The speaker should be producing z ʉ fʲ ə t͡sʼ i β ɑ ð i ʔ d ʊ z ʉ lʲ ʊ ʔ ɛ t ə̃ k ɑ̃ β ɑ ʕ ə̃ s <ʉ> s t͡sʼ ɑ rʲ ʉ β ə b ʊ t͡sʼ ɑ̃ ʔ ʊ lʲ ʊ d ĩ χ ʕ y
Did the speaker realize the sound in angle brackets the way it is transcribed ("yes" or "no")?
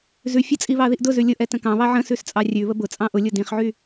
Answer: yes